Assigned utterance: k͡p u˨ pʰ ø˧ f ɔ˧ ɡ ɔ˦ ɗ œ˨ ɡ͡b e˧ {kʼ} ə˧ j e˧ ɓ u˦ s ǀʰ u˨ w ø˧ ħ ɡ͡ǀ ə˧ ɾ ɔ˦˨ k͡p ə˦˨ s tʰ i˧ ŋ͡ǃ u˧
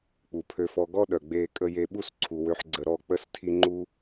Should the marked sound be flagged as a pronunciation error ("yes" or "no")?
no